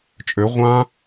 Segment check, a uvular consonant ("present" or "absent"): present